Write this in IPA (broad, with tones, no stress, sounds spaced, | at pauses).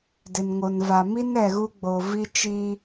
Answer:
d ɪ˨ n ŋ o˨ n v a˨ m i˦ n ɛ˨ ɣ u˦ ɡ͡b o˨ v i˦ t͡ʃ i˦